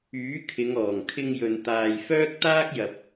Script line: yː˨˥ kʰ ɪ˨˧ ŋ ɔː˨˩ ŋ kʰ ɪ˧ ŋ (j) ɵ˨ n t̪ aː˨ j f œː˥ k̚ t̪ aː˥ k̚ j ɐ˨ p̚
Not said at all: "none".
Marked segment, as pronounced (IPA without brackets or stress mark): j